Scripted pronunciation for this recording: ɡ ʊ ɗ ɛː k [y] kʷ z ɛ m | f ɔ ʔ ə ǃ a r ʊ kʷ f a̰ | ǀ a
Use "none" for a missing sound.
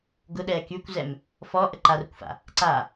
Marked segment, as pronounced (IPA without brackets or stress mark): y